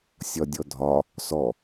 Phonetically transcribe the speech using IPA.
sʲ ɒ dʲ ɔ dʱ ɒ | s ɔ

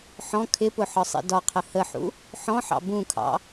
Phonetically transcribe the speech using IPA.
ħ ɔ̃ kʰ ɪ p ʊ ħ ɒ sˤ ḭ d ɒ qʰ ə h ə ħ ṵ | ħ ɔ̃ ħ ɑ̰ b ũ kʰ ɑ̰

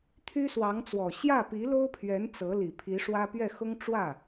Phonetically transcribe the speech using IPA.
t̪ʰ y˥ s w ɑ˧˥ ŋ t͡s w ɔ˨˩ ɕ j ä˥˩ p i˧˥ l o˥ ʊ̯ pʰ ɥ ɛ˧˥ n t͡s ɤ˧˥ l i˨˩ pʰ i˧˥ ʂ w ä˥ p ɥ ɛ˥˩ x ʊ˥ ŋ ʈ͡ʂ w ä˥˩

